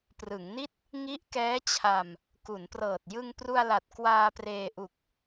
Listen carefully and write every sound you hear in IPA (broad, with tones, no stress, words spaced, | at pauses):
prɯ˩˦ŋni˥˩t̚ | ŋi˦˥ʔkɛː˦˥t͡ɕʰa˧m | ku˩˦nprɤː˨˩t̚ jɯ˧ŋpru˧a̯la˨˩t̚ kwaː˧preː˧ ʔu˨˩k̚